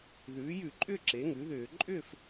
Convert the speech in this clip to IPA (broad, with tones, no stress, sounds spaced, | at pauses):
ð ʉː˩˥ j ʉ˧˩˧ ǃʼ ʏː˥˨ ǁ e˩˥ ŋ ʉ˩˥ ð ʏː˧˩˧ ǃʼ ʏ˥˨ f